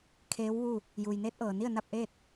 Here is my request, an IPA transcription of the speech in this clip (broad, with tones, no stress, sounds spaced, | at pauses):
kʰ eː˧˥ w ʋ u˥˨ | j uː˩ j n eː˧˥ t̚ ʔ ɤː˩ n i˥˨ ə̯ n a˥˨ p̚ ʔ eː˥˨ t̚